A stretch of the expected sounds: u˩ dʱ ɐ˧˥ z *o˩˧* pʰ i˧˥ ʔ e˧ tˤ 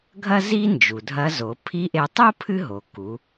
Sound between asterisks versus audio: correct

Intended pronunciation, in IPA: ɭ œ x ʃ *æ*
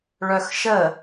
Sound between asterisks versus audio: incorrect: ə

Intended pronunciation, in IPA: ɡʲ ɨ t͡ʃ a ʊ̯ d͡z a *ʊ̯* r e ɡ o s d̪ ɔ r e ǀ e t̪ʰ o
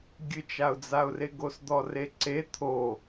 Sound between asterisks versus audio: correct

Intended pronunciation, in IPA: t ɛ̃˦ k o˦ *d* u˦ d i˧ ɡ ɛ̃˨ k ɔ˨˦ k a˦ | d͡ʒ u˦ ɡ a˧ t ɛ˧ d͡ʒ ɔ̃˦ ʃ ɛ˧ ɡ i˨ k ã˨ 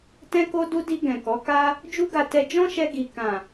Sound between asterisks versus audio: correct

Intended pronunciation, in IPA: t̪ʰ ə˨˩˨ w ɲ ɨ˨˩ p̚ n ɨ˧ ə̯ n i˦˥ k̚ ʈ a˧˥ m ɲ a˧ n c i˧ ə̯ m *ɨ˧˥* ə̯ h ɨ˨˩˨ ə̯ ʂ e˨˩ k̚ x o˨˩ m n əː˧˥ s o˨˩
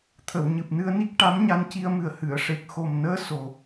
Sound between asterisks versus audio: incorrect: ɨ˨˩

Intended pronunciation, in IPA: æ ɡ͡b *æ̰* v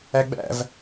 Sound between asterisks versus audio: correct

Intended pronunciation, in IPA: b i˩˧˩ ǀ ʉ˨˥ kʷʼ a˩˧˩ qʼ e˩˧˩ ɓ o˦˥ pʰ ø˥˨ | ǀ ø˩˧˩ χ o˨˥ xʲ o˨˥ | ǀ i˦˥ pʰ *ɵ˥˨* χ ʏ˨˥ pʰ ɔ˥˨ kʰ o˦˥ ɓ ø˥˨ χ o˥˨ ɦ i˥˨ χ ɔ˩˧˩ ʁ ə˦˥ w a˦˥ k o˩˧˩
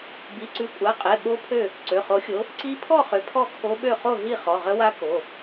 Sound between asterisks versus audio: incorrect: ɔ˥˨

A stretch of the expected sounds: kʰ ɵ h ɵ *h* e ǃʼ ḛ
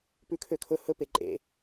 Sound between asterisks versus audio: incorrect: p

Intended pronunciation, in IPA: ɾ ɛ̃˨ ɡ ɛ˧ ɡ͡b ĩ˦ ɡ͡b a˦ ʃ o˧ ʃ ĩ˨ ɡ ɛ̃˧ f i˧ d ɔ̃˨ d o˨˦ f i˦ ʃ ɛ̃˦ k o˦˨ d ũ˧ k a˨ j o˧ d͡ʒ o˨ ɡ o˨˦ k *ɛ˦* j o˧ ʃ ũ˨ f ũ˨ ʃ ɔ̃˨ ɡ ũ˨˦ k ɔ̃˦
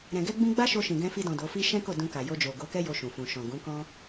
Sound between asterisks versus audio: correct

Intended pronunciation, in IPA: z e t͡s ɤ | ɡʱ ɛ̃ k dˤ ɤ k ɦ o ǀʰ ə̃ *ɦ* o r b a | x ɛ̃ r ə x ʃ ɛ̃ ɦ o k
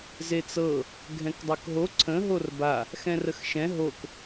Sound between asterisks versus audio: correct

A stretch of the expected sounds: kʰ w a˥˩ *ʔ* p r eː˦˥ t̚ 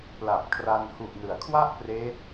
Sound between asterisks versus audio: correct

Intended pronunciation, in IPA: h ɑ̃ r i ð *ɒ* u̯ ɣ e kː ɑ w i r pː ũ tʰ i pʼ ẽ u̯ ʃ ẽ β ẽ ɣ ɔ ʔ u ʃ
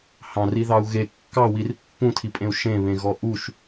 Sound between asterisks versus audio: incorrect: ɑ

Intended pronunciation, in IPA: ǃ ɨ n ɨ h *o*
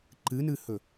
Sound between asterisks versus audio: incorrect: ɵ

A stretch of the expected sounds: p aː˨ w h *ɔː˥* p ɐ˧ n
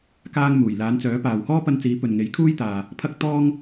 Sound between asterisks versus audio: correct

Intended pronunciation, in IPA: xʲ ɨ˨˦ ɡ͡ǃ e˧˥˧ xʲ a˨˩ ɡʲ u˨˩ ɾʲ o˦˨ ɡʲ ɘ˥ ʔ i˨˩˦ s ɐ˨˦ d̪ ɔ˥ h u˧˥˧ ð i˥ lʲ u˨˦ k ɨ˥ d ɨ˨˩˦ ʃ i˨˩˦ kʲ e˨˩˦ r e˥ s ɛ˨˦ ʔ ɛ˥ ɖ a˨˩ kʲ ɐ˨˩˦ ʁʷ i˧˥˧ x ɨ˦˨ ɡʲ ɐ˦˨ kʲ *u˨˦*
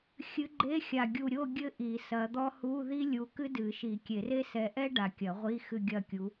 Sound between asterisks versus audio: correct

